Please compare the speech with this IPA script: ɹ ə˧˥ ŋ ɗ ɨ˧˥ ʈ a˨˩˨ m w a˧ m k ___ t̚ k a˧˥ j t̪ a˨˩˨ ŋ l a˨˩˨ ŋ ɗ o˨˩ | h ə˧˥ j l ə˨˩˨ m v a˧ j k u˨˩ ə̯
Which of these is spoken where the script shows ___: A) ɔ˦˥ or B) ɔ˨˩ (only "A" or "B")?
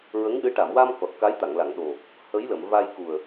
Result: B